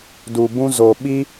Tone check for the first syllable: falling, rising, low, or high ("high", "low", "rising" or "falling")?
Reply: low